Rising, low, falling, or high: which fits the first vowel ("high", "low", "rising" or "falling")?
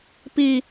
high